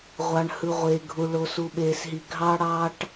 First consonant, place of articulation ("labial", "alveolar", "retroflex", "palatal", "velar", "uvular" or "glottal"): uvular